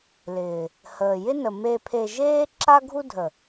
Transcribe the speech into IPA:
l ɪː˨ | h əː˨ j ɪ˦ n ə˨ m e˧ pʰ e˧ ʒ eː˦ ǁ a˦ ɡʱ u˦ dʱ ə˨

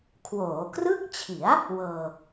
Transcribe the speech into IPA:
kʰ w oː˩˦ k r ɯ˥˩ k̚ t͡ɕʰ i˩˦ a̯ | w ɤː˧

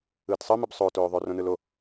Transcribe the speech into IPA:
ɯː t sˤ ɯ m ɯ b sˤ oː t oː ðˤ o r õ n ɯ l o

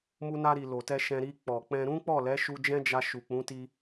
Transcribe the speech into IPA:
m u˧ n a˧ ɾ i˨ l o˨ t ɛ˧ ʃ ɛ̃˧ ɾ i˧ k͡p ɔ˨ k͡p ɛ̃˧ ɾ ũ˦ k͡p ɔ˦˨ l ɛ˨˦ ʃ u˧ d͡ʒ ɛ̃˦ d͡ʒ a˧ ʃ u˨ k͡p ũ˨˦ t i˧

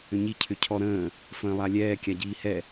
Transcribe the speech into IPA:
ʏ ɲ i cʰ ʏ cʰ ɔ ɾ ə̃ː | f ə̃ː lˠ a lʲ ɛː kʲ a ɟ iː h ɛ

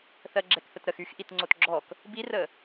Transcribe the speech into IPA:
θ ɜ ɡ͡ǁ ɛ k θ ə t ɾ ə x y x ʔ i t ŋ͡ǀ o t ɡ͡ǁ ɔ k | b i r ə

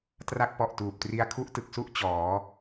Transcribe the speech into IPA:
t r a˦˥ k̚ p ɔ˨˩ ʔ t uː˨˩ p̚ t r i˧ a̯ kʰ u˦˥ ʔ t ɯ˨˩ k̚ s u˥˩ ʔ t͡ɕ ɔː˩˦

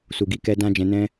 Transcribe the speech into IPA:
s u˨ ɡ i˨˦ k ɛ˧ d ã˧ d͡ʒ ɛ̃˧ n ɛ̃˦

